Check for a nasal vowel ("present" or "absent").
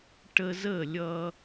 absent